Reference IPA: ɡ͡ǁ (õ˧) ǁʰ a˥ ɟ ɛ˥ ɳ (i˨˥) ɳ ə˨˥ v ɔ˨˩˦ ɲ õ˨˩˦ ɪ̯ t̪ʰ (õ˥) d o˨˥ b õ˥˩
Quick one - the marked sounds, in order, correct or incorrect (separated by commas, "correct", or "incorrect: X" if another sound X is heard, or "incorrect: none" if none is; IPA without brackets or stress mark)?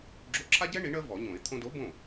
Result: incorrect: o˧, correct, incorrect: õ˧